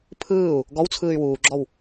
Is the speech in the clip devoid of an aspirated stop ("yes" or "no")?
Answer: no